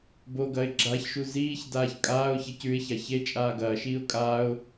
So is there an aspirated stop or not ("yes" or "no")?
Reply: no